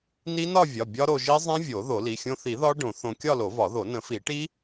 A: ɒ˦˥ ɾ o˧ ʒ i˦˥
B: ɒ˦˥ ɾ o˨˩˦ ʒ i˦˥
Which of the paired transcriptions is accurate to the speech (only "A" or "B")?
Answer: A